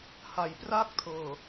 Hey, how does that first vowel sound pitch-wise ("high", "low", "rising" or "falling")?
low